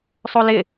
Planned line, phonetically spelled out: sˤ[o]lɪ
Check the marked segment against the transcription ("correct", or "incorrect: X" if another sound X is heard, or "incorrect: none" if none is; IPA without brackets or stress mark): correct